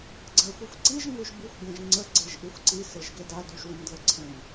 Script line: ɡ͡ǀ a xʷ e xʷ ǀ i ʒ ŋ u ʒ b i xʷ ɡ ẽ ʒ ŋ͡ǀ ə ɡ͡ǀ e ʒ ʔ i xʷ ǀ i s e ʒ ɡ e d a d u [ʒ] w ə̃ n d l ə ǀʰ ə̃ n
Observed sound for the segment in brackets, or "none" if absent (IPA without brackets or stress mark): ʒ